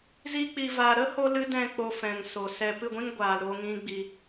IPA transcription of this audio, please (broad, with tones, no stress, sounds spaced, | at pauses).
z i˧ k͡p i˨ v aː˨ ɾ ə˦ h o˧ l ɨ˦ d ɛ̃˦˨ k͡p o˧ f ɛ̃˨ ŋ s o˨ s ɛ˧ p ɨ˦˨ ɡʷ ĩ˦ n ɡʷ aː˨ l ɾ o˧ ŋ ĩ˦ ɡ͡b i˧